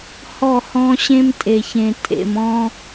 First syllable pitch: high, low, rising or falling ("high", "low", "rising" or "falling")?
falling